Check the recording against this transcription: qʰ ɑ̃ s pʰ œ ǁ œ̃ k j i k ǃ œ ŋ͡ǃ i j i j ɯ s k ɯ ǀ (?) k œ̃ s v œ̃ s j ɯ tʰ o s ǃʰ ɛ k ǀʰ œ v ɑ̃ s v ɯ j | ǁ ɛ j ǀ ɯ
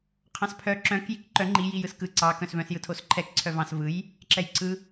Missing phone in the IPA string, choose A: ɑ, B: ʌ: A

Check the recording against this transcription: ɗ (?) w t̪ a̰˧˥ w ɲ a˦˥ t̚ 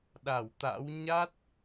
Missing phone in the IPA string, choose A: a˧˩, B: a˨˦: A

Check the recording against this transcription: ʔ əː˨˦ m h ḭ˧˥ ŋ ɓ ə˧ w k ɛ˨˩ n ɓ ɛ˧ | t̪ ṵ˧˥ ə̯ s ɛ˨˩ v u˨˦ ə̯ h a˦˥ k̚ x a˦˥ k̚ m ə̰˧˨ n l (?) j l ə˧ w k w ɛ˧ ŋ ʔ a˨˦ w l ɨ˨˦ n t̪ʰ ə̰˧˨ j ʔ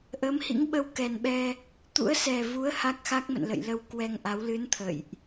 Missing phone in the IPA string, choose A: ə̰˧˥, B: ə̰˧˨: B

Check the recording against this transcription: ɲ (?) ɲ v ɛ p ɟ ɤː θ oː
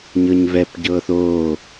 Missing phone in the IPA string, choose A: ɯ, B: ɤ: B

